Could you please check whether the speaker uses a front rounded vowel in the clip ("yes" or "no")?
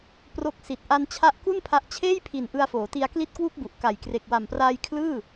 no